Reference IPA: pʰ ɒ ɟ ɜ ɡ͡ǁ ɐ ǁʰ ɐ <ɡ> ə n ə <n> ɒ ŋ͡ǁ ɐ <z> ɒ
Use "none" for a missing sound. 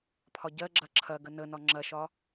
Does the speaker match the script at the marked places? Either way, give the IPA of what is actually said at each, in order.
ɡ, n, ʃ

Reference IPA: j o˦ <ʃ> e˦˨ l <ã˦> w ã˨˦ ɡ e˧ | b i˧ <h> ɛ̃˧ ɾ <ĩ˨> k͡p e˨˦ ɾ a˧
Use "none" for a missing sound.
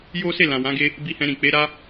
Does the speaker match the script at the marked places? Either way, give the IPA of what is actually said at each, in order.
s, ã˨, h, ĩ˨

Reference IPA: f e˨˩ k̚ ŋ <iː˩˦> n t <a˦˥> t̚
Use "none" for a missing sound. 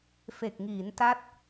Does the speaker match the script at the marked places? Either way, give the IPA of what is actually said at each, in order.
iː˩˦, a˦˥

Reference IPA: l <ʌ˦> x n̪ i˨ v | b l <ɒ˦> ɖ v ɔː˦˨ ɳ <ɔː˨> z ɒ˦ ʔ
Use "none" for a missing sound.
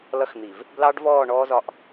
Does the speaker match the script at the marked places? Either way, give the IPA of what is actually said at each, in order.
ʌ˦, ɑ˦, ɔː˦

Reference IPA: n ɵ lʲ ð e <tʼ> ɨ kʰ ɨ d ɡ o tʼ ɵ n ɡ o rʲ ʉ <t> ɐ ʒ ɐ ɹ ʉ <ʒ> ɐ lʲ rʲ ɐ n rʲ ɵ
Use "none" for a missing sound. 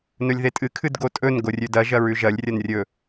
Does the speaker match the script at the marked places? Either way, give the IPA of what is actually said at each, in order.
tʼ, d, ʒ

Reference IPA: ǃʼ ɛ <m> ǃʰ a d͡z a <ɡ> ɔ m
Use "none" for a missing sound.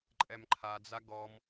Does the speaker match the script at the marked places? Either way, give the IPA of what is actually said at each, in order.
m, ɡ

